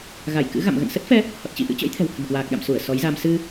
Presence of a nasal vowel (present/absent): absent